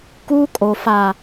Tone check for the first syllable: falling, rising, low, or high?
high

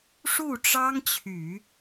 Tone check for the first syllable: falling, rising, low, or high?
falling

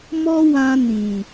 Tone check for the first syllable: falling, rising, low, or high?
high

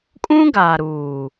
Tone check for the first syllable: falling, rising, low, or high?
high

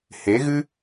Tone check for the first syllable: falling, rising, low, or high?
rising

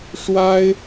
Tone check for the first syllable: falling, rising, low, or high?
high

